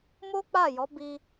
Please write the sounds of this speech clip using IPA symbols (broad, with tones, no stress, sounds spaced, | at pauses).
m o˦ k͡p a˦˨ j ɔ˨˦ b i˧